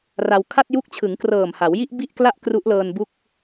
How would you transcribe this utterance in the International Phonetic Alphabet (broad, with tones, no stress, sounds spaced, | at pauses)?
r a˧ w kʰ a˥˩ t̚ j u˦˥ k̚ t͡ɕʰ ɯ˩˦ ŋ k r ɤː˨˩ m h a˩˦ w j i˥˩ ʔ b i˥˩ ʔ k l a˥˩ ʔ k r u˦˥ ʔ l ɤː˧ n b u˥˩ k̚